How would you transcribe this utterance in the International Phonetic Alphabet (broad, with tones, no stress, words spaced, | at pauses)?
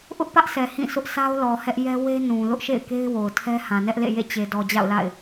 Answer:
ʔʊ˦ʔpä˦ʔsɛ˨ hĩ˦˨sʊ˦ʔ sa˦ʊ̯lɔ˨ hɛ˦ʔjɛ˦ we˦nũ˨ lʊ˦ʔʃḛ˦˨ɪ̯ke˦ɪ̯ wo˨ʊ̯tʰɛ˦ hã˨nɛ˦ʔlḛ˦˨jḛ˦˨ t͡ɕe˨ dɔ˨d͡ʑa̰˦˨ʊ̯la̰˦˨ɪ̯